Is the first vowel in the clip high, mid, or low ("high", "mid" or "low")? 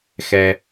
mid